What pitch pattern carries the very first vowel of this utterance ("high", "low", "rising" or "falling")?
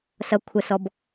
high